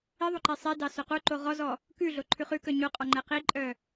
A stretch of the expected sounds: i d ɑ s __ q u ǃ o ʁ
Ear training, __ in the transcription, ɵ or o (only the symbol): ɵ